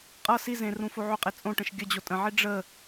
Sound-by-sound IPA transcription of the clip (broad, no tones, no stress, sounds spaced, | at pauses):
qʼ ʌ s i z ẽ r ũ f o ʕ ʏ qʼ e t͡sʼ õ ʈ ə̃ ʃ ɡʲ ə d͡ʑ o tʼ ə̃ ʕ i ɖ͡ʐ ə